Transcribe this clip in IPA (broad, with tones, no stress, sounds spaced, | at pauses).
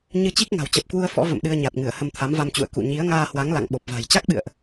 ɲ ɨ˧ t͡ɕ i˦˥ k̚ ŋ a̤˨˩ w t͡ɕ ə˨˩ p̚ k w u˧ ə̯ f ɔ̰˧˥ v ə̰˧˨ m ɗ ɨ˧ ə̯ ɲ a˨˩ t̚ ŋ ɨ˧˩ ə̯ h ə˧ m t̪ʰ a˨˦ m v a˧ m t͡ɕ ṵ˧˨ ə̯ k ṵ˧˨ ɲ i˨˦ ə̯ ŋ aː˧ h w a˨˦ ŋ l a̰˧˨ ŋ ɓ o˨˩ p̚ v a̤˨˩ j t͡ɕ a˦˥ k̚ ɓ ɨ̰˧˨ ə̯ ʔ